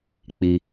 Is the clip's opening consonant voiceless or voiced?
voiceless